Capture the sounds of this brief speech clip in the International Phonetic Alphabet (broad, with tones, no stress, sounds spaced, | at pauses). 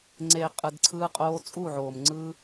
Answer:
ŋ͡ǀ eː˨ qʼ ɯ˨ d ǀʰ ɯː˧ qʼ oː˧ t͡sʼ u˦˨ ʕ oː˨ m ŋ͡ǀ ɯː˦